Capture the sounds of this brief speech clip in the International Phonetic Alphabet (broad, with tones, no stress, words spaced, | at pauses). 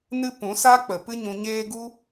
nɨ˦ pũ˨˦ sa˦ k͡pə˨pɨ˦ɲũ˧ɲeː˦ ɡu˦